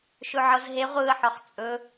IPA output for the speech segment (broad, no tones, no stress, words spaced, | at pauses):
ʃɵʕɤzɦe ʁʷɯə̯ħɒχ t͡sʼɵ